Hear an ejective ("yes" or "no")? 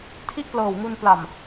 no